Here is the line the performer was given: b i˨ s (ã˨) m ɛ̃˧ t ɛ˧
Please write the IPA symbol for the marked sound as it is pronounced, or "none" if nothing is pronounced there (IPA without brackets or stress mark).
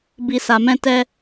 a˨